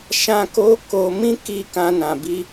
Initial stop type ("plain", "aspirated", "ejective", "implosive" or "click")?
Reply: plain